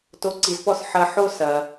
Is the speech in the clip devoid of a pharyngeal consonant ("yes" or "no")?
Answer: no